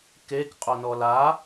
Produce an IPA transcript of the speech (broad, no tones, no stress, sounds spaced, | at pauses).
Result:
k e k qʼ o n ɔ l a